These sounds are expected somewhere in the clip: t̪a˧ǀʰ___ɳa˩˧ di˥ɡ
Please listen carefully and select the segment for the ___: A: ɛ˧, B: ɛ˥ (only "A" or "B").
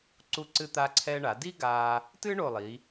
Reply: A